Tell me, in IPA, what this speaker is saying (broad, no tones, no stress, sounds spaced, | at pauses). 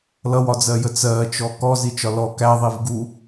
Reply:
l ʌ w ɒ d͡z ɜ j ə t͡s ɜ t͡ʃ ɔ k ɔ z i t͡ʃ ɒ l ɔ k æ ðˤ i v ɡ u